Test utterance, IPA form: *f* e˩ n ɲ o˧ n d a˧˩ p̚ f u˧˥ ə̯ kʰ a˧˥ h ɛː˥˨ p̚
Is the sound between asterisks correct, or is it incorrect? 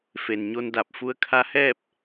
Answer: correct